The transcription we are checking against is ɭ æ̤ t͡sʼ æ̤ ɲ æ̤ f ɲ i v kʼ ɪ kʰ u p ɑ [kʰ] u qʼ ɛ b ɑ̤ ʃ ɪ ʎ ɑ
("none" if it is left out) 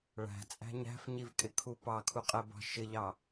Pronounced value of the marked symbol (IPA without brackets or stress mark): kʰ